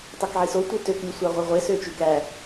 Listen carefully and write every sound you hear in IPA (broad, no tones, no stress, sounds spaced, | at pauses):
tˤ e k ʕ i s o tʷ ɯ t ø k lʲ u sʷ ɑ ʁʷ e ʁʷ e s ø t͡ʃ y k æ